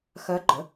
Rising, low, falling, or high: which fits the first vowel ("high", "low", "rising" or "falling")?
rising